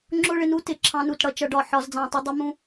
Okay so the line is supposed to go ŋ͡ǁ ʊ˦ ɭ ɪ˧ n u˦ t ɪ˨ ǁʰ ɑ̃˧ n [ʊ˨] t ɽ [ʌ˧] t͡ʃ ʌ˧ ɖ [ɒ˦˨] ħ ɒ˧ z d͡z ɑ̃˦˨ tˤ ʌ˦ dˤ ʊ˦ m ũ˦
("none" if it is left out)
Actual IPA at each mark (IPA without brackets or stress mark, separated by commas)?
u˨, ʌ˧, ɒ˦˨